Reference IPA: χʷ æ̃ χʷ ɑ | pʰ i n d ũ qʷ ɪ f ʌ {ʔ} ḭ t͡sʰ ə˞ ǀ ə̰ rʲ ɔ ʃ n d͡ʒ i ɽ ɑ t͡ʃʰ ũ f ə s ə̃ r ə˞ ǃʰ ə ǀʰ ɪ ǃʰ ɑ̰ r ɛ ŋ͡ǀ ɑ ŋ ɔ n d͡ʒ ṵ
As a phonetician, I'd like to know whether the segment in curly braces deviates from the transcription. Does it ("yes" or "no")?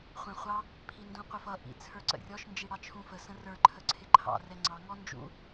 no